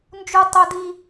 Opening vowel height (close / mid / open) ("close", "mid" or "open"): close